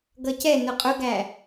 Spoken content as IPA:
ɡʌcɛ nʊqʼʊɡæ

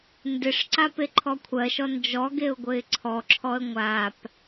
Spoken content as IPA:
ndɪʂǀa peǃʰɔkʷʰɜʃɔ nd͡ʒɔɡeʊ̯ ɡʷɘɪ̯ǀʰɔǁʰɔə̯ ŋʷap

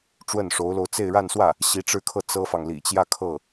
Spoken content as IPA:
ʈ͡ʂwə˥˩nʂo˧˥ʊ̯lo˧ʊ̯ t͡se˥˧ɪ̯ɻa˥˧nswä˥˩ | ɕi˧˥ʈ͡ʂɻ̩˥˧kʰɤ˥˩ t͡sɤ˥fɑ˨ŋ lḭ˨˩t͡ɕjä˥˧ kʰɤ˥˩

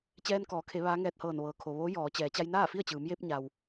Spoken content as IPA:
t͡ɕɛː˧nkɔː˩˧kʰe˩˧ ʋaː˧˥ŋɛː˧t̚hɤː˧˩n ʋɤː˩kʰo˩ʋoː˧˥ jɔː˩˧t͡ɕɛː˩˧ t͡ɕa˧jnaː˥˨fi˥˨ə̯t͡ɕɯː˩˧m je˧p̚ɲa˩w

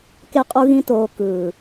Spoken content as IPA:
ke˧qʼu˧ɣĩ˧toː˨ kɯː˨

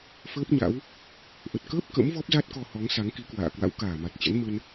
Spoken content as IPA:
fəː˦˥p̚ɲa̰˧˥w | ʔə˨˩t̚kəː˦˥p̚ kə̰˧˥m vɔ˦˥p̚za˦˥t̚kɔ˧ hɔ˨˦ŋsa˨˦ŋki˨˦kwa̰ː˧˨ kwa̰˧˥wkaː˧˩ma˨˩t̚t͡ɕə̰˧˥n mə˧n

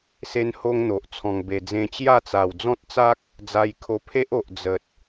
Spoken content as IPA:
se˦nho˦ŋn̪o˨ʔ t͡sʰɔ̃˨˩ŋbe˨˩d͡zẽ˧ t͡ɕja˥˧t͡sa˨˩w d͡zɔ̃˦t̚t͡sa˦k̚ | d͡za˧jkʰo˧ pʰe˦ʔo˨ʔ d͡zə˨t̚

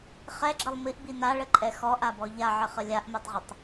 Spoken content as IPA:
χɛɡ͡ǁəlˠ miʔbi naɭəǃʼɛ xɔʔabɔ ʎaʕəχə lʲaʔmɛtˤʁətˤ

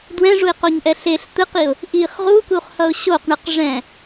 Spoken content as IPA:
dwɛ̃ʐuɪ̯qoɲʔɛ ɬeɬ t̪ɯqiʊ̯ | ʔiχ ʁukuχhʌʊ̯ ɕoqɳɯq ʐɛ̃

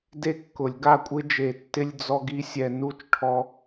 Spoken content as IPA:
de˦kːʊ˨˩˦lʲɡa˥˨ kʷʼɪ˦d͡ʒe˨˩˦ tːɪ˦lʲ d͡zɔ˦ɡi˦ sʲɛ˦ nu˥˨t͡ʃʈʰɔ˦

